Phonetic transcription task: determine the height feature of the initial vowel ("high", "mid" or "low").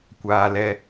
low